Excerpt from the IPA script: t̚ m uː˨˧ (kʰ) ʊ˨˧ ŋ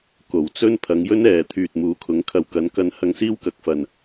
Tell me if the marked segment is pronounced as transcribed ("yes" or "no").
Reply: yes